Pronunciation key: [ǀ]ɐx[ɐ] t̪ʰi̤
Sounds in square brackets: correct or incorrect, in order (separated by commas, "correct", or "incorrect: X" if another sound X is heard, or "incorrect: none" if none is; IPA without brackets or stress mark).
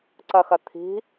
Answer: correct, correct